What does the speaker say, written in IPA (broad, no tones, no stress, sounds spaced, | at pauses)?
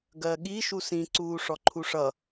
ɡ ɜ ɠ i ʃ u s ĩ ǀ uː ʂ ɔ ǃʰ u ʂ ʌ